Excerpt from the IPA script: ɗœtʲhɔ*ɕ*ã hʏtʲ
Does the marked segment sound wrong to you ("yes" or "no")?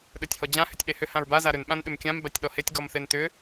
yes